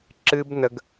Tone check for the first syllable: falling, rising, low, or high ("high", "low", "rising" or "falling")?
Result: high